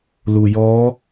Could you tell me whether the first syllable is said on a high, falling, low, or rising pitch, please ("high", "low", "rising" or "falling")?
low